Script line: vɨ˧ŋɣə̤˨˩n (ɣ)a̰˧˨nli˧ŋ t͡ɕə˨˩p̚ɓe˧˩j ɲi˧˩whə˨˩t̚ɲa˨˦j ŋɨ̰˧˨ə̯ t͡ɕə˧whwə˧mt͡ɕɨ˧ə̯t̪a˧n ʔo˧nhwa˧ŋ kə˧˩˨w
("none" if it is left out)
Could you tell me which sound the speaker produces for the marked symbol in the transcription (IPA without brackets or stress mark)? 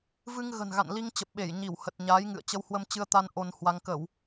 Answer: ɣ